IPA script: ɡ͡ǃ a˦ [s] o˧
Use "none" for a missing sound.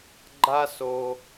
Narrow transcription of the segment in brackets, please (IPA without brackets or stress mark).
s